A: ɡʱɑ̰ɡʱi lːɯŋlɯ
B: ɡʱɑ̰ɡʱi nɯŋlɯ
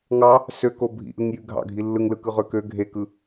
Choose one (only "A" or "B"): A